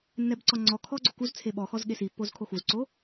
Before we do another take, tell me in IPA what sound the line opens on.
nː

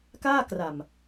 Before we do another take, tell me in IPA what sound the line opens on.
k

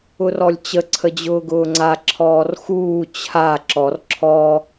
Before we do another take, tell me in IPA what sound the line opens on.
ʊ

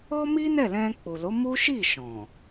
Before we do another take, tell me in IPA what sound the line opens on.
ɔ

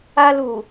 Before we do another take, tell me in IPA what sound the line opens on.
a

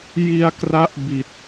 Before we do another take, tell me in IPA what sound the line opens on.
j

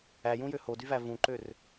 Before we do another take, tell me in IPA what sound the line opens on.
æ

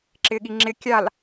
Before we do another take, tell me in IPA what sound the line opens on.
ǁ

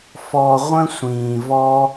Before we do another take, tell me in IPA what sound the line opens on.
f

